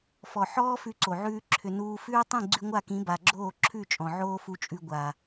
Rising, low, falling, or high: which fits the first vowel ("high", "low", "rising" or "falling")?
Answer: low